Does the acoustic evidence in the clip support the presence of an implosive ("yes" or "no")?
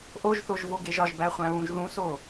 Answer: no